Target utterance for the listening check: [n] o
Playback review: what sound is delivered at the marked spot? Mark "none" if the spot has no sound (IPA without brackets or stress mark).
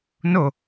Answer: n